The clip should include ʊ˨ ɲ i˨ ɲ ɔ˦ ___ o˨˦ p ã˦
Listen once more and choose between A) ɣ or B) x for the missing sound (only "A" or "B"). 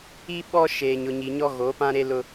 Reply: A